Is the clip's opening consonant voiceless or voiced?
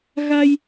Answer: voiced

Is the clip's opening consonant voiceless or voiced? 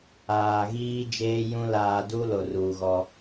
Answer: voiced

